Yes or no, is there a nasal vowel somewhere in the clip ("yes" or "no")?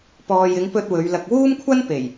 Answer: no